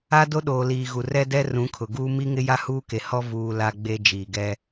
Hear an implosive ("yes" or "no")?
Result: yes